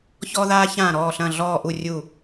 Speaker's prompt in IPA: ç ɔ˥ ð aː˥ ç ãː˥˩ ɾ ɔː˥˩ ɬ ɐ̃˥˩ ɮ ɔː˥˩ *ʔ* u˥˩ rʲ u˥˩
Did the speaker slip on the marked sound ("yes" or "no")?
no